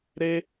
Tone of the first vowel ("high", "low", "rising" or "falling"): high